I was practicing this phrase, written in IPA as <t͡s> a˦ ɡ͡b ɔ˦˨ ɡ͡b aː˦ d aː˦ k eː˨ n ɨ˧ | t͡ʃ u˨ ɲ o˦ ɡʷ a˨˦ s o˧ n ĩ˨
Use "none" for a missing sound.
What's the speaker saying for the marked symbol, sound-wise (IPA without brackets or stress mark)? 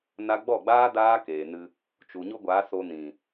n